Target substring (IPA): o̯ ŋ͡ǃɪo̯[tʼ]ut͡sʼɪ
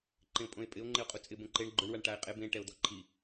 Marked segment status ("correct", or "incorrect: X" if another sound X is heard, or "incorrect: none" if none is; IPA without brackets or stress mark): incorrect: qʼ